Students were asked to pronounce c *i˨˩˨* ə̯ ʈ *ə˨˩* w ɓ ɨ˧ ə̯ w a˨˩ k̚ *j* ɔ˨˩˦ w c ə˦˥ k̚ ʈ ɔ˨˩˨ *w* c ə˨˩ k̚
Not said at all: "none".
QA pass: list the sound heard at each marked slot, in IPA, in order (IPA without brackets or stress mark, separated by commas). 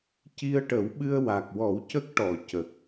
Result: i˧, ə˨˩˦, w, none